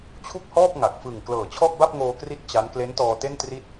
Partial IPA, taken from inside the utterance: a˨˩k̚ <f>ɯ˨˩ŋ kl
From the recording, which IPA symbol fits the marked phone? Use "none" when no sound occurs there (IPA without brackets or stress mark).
f